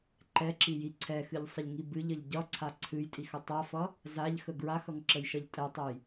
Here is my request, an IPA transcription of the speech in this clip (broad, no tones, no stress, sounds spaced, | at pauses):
ǃ ɛ ǁ i j i ǀʰ ɛ x ɨ ʎ sˤ ə ʎ ŋ i b ɨ ʎ ə ʎ ɟ ʌ ǀʰ a ǀʰ ɨ j tʼ i x ə tˤ a f ʌ | z a ʎ x ə ɡ ɹ a x ʌ ŋ ǁ ə j ʃ ʌ ʎ tʼ ɛ tˤ ə j